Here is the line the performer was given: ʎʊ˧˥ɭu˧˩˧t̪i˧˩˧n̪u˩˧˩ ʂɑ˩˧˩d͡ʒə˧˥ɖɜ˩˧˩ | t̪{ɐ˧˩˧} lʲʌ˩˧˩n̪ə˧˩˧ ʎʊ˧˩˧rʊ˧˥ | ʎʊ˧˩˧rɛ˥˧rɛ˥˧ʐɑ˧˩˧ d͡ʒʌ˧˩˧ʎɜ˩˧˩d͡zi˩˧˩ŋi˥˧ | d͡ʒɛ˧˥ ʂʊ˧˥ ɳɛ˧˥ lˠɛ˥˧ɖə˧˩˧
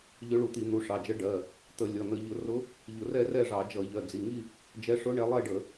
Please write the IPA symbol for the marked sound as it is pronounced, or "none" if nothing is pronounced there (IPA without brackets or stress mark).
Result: ə˧˩˧